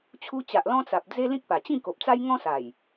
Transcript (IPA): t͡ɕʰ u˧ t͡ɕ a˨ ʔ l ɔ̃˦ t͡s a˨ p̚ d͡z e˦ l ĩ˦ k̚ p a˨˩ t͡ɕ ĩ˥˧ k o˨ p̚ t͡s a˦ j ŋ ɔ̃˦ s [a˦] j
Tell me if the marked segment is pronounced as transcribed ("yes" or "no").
no